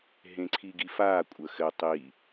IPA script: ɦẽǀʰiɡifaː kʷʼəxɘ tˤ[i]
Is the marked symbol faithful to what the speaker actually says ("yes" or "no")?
yes